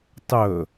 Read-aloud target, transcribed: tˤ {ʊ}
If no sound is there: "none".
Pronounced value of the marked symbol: ɵ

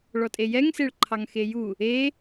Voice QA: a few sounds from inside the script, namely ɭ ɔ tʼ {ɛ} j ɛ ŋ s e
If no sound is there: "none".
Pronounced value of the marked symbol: e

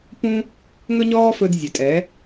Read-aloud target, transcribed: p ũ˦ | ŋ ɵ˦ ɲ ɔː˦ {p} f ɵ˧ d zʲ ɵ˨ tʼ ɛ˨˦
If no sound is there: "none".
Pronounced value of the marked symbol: none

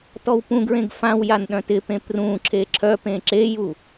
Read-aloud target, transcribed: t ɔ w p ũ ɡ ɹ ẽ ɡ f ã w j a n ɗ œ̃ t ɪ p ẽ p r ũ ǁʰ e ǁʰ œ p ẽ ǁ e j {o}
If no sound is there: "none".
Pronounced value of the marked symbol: u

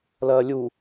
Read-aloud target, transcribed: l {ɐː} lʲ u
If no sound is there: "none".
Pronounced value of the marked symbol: ɐː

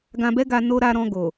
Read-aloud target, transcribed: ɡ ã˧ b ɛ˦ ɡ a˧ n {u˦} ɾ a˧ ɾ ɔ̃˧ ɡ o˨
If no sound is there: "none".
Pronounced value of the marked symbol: o˦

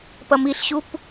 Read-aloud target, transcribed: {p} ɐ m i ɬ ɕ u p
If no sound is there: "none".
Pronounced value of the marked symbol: p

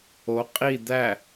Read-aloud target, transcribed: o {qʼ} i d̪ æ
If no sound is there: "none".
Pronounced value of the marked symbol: qʼ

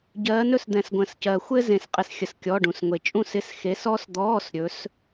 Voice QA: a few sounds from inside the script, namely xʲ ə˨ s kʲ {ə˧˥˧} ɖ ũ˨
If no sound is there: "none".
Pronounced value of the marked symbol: ɔ˧˥˧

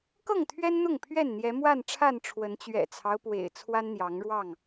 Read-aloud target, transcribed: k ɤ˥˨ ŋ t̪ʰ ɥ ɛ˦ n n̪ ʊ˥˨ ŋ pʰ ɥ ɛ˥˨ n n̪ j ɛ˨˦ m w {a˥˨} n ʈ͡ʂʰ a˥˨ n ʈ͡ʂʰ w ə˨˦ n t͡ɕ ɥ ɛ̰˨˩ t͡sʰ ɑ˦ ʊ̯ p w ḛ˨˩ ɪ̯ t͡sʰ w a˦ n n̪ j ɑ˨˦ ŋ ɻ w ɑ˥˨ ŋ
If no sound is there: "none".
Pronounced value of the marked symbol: a˥˨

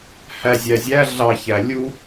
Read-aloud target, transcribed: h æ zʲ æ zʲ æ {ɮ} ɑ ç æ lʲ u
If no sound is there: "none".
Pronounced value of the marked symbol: ɮ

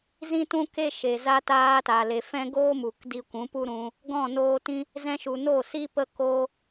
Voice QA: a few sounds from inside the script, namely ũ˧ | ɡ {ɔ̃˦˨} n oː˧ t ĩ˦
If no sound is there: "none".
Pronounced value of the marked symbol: ɔ̃˦˨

